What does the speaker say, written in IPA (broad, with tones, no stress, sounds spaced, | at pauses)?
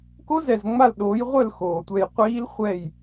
k o˦˥ z ɛ˨ z ŋ͡m a˦˨ l ɗ oː˨˦ j ʁʷ œ˦˨ l x oː˨ tʷ ɛ˦˨ j qʷ iː˦˥ l χʷ ɛ˦˨ j